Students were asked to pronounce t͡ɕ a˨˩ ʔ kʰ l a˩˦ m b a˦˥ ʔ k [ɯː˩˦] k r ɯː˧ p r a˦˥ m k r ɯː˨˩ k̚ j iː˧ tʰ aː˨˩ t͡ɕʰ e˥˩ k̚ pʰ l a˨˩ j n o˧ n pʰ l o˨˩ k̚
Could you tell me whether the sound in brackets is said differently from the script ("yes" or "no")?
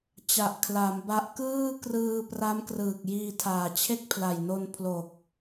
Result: yes